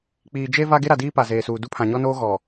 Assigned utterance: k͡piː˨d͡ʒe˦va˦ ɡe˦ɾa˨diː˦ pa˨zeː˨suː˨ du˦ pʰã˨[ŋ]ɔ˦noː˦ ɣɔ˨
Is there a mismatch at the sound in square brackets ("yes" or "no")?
yes